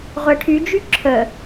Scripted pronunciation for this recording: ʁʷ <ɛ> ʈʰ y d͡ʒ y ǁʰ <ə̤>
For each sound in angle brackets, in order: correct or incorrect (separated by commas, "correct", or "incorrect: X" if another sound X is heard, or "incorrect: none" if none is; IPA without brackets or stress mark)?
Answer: correct, incorrect: ə